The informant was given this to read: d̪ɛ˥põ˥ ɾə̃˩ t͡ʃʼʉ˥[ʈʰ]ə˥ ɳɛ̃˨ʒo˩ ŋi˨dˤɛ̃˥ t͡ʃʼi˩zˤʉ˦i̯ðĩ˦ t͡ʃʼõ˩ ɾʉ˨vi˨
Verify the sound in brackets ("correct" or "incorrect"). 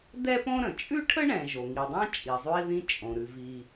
correct